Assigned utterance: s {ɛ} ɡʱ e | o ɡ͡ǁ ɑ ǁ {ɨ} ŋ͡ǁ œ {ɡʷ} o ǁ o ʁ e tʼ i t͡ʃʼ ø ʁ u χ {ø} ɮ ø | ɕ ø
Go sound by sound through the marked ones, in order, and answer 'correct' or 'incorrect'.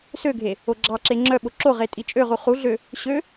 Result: incorrect, incorrect, incorrect, incorrect

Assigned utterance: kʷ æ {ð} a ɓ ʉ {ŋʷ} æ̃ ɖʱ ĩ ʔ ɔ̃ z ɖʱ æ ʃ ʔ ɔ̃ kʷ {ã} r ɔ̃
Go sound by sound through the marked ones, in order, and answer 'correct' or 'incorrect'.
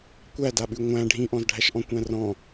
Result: incorrect, correct, incorrect

